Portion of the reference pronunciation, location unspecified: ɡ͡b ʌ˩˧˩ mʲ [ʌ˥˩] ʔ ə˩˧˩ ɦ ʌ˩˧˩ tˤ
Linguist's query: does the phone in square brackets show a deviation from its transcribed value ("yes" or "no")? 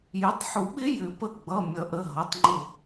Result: yes